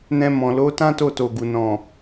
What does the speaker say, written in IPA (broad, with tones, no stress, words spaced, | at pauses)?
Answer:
nɛ̃˧mɔ̃˨ lo˨˦tã˦ to˦˨to˨ɡu˨ nɔ̃˨